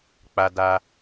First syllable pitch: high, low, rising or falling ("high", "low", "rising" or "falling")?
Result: high